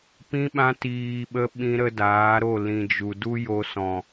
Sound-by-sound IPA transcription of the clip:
p ĩ˧ ɓ ã˧ t iː˨ ɓ ə˧ ɓ ĩ˧ ɾ ə˧ d aː˨˦ ɾ o˦˨ l ĩ˨ d͡ʒ u˨ d u˦ j o˧ s ɔ̃˨

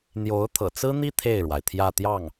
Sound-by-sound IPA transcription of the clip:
n̪ j o˧˥ ʊ̯ t̪ʰ ɤ̰˨˩ t͡s ɹ̩˥ n̪ i˥ t̪ʰ e˥˩ ɪ̯ ɻ w a˩ ɪ̯ t̪ʰ j ä˥˧ t̪ j ɑ˥˩ ŋ

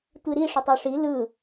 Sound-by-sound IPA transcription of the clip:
tʷ i ɾ i ʂ ʊ tˤ ø ʂ i l ɯ

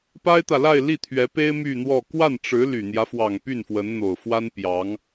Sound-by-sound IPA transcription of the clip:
p a˥ ɪ̯ t̪ ä˨ l a˥˧ ɪ̯ l i˥˩ t̪ʰ ɥ ɛ˧˥ p e˥ ɪ̯ m y˥˧ n̪ w ɔ˥˧ k w a˥˩ n ʈ͡ʂ ɻ̩˧˥ l y˨˩ n̪ j ä˦ f w ɑ˨˩ ŋ p y˥˩ n f w ə˧˥ n n̪ o˨˩ ʊ̯ f w a˥ n p j ɑ˧˥ ŋ

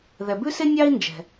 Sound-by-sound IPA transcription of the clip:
ð ɛ˩ b ʉ˥ s e˥ nʲ ɑ˥ i̯ n d͡ʒ ɛ̤˩

